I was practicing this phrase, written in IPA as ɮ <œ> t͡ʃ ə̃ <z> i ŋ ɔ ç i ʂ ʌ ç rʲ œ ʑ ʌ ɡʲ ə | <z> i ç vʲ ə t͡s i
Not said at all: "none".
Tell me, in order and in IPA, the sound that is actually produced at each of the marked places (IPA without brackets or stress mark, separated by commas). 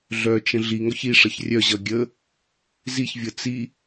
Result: œ, ɮ, z